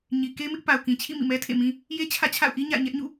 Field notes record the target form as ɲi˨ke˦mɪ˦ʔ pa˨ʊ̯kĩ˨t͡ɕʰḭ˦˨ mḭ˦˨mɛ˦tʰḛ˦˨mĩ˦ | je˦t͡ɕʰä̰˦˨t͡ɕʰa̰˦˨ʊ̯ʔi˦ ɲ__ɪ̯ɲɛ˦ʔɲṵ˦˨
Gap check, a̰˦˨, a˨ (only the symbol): a̰˦˨